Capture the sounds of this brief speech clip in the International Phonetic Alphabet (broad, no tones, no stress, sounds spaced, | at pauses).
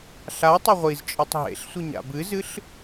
ɬ a tˤ ɐ ʁʷ i z t͡ʃʼ ɨ tˤ ɦ ḛ ɬ sʷ i ɲ a̰ b ɨ z ɨ ɬ